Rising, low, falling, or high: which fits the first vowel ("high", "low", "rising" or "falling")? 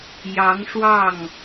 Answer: rising